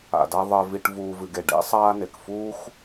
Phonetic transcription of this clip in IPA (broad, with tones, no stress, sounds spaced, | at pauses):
a̰˨ d a˦ ðˤ ɜ˨ v i˨ ʈ v uː˨ v ɨ˨ ɡ e˩ ɖ ḛ˦ sˤ aː˦ n e˩ k f uː˥ x